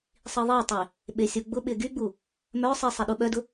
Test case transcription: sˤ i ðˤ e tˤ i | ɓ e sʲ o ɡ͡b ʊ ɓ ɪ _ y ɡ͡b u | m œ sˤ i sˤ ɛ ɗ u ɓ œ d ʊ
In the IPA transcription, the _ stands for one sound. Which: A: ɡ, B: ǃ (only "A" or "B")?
A